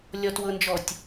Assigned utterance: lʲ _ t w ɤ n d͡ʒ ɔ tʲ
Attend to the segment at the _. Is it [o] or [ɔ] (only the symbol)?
ɔ